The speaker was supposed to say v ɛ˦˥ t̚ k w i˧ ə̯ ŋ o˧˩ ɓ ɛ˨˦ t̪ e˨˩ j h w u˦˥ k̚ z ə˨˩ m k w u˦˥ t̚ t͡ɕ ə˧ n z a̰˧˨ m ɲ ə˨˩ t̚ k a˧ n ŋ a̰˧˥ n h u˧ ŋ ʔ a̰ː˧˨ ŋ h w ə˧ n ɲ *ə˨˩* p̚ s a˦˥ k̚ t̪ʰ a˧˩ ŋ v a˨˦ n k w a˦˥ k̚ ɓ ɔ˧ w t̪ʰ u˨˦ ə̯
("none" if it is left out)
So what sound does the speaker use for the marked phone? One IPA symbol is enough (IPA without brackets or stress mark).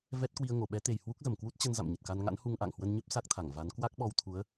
ə˦˥